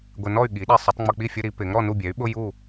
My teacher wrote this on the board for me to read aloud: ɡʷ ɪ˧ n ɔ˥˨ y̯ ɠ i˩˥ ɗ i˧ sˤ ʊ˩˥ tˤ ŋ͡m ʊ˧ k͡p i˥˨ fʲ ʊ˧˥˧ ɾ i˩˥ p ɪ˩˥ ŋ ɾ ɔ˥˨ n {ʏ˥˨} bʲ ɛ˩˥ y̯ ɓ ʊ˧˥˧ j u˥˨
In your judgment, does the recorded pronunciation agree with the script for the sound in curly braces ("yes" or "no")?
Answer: no